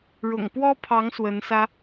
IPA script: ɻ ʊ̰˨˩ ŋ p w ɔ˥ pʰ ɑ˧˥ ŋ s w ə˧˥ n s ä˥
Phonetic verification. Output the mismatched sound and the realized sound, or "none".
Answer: none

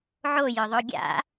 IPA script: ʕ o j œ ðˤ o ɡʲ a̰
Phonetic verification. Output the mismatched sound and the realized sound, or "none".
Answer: none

